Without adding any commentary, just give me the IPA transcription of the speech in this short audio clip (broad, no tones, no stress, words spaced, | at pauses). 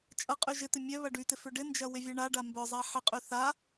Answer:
t͡ʃʼɐqʼy ʒɪt̪ɪ mʲœ βɐɖytɪ fʏɖɪnd͡ʒɐ wɪvʲaɳaɖa mbœzˤa ħɪqʼy θa